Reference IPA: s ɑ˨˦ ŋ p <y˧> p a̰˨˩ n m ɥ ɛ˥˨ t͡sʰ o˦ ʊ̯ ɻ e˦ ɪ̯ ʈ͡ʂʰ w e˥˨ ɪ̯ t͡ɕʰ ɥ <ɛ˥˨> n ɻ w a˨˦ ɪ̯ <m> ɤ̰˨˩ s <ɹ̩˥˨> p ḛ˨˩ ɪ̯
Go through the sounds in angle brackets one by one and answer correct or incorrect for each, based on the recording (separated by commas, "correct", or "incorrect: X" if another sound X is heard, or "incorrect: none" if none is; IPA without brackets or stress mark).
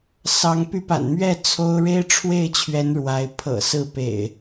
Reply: correct, incorrect: ɛ˨˦, incorrect: pʰ, correct